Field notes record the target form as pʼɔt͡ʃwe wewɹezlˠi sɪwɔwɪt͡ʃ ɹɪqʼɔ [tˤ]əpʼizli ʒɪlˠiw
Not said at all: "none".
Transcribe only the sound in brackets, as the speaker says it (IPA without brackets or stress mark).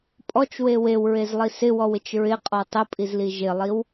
tˤ